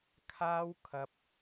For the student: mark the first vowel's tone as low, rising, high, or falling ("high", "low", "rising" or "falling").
high